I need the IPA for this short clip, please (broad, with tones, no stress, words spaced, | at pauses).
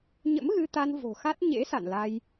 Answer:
ɲə̰˧˥mɣɨ˧t̪a˧n vo̤˨˩xa˦˥t̚ ɲḛ˧˥sa̰˧˨nla˧j